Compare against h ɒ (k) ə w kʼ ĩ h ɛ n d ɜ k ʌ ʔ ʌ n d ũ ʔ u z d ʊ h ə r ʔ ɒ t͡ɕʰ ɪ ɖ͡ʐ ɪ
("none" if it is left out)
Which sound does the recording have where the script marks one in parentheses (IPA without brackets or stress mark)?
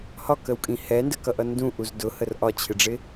k